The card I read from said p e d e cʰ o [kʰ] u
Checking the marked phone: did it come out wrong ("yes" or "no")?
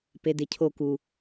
yes